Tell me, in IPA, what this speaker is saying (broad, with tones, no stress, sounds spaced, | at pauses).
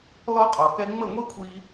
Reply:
l ɔ˦ qʼ ɔ˨ k ɛ˦ ŋ͡m ə˦˨ ŋʷ i˦ kʷʰ i˧